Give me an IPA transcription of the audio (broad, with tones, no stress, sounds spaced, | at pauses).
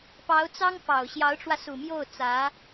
p ɑ˧˥ ʊ̯ t͡s ɑ˥ ŋ f ɑ˨˩ ʊ̯ ɕ j ɑ˧˥ ʊ̯ ʈ͡ʂ w ä˧ s u˨˩ m j o˥˩ ʊ̯ t͡s ä˧˥